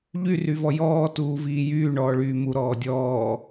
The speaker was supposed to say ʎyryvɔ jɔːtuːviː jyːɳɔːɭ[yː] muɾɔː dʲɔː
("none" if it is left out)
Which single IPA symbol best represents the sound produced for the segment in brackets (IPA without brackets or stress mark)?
yː